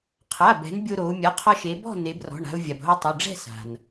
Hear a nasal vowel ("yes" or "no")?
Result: no